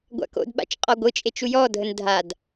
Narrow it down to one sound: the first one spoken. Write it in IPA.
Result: ɡʷ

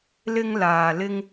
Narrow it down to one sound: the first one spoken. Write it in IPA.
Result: l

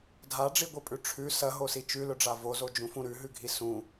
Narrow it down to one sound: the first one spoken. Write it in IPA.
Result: dʱ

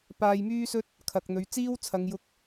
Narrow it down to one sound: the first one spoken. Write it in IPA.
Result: p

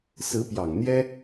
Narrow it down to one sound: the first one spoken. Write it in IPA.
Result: s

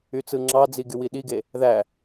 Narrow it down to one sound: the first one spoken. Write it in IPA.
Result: y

